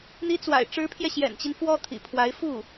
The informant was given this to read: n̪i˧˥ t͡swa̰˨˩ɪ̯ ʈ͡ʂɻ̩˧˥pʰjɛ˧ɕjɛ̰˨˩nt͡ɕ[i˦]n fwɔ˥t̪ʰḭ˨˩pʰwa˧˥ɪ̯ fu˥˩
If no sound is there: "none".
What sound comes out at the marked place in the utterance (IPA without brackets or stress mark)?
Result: i˦